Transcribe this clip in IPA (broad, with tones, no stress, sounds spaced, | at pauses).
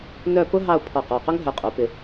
n œ˥˧ p ʊ˥ ɦ ɑ˥˧ ʊ̯ pʰ ɔ˧˩ q ɔ˧˩ q ʊ˥ ŋ ɦ œ˧ qʼ u˩˧ p ɪ˧